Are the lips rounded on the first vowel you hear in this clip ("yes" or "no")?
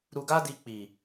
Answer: yes